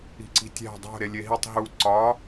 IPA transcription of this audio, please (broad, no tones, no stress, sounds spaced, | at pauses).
i̤ ǀ i̤ tʲ æ̤ dˤ o̤ ɾ e lʲ e ɦ i tˤ ɦ u ǀ ɒ